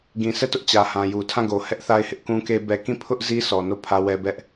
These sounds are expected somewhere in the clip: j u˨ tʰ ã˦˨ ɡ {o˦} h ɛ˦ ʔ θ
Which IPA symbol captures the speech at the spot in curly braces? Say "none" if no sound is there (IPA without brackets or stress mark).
o˨